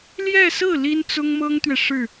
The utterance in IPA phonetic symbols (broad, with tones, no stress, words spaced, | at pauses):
ljɛ˥˧sɹ̩˥˩ li˥nt͡sʊ˥ŋmɤ˥ŋt̪ɥɛ˨ ʂɻ̩˥˩